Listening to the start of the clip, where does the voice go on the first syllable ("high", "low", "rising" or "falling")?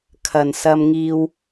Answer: low